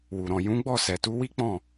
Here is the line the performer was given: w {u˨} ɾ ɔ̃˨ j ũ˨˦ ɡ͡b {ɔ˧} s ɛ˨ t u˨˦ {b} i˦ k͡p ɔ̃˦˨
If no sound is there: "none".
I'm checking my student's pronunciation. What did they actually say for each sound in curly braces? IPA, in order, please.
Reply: u˨, ɔ˦˨, w

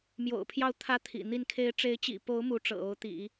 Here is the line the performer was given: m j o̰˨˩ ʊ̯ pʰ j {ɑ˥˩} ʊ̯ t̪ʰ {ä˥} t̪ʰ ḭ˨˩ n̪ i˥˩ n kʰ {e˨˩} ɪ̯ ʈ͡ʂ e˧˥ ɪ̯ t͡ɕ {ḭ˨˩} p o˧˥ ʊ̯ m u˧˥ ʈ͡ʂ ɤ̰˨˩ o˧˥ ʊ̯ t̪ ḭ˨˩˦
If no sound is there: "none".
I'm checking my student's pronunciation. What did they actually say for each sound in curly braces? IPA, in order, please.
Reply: ɑ˥˩, ä˥, e˧˥, ḭ˨˩

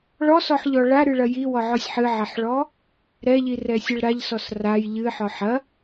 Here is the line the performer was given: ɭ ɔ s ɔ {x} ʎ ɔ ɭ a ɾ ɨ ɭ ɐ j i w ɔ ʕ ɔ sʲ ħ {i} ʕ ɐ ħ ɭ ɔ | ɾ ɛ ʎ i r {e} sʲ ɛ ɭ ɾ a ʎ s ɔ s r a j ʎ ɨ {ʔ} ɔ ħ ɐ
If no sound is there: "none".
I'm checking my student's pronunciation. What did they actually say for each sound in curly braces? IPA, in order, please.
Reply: ħ, ɨ, ɛ, ħ

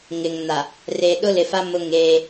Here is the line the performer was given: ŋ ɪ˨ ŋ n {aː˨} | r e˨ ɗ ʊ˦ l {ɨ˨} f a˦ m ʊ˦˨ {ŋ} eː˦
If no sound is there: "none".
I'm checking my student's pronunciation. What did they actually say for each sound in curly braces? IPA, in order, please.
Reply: a˨, ɪ˨, ŋ

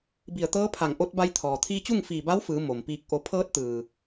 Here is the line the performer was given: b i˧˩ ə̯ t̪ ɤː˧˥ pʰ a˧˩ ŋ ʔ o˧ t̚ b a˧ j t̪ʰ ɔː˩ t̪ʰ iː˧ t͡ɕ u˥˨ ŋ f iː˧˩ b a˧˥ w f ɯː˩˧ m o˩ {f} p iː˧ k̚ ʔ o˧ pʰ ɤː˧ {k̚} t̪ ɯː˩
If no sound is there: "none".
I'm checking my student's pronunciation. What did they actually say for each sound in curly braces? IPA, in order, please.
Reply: m, t̚

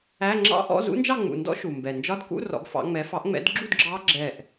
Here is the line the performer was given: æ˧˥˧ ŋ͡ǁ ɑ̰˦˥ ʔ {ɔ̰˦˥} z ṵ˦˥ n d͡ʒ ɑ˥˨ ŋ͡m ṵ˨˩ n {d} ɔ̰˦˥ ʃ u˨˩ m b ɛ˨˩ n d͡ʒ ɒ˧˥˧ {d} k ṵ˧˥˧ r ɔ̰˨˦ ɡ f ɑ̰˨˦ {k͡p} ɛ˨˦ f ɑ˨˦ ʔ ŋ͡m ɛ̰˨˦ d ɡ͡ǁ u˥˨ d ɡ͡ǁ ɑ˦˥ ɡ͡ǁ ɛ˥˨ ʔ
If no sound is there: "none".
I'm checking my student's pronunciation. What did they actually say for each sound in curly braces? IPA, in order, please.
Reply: ɔ̰˧˥˧, d, d, ŋ͡m

